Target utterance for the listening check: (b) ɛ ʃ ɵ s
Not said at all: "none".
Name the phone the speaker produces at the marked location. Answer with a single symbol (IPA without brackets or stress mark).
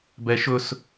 b